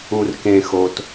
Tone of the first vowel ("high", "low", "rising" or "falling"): low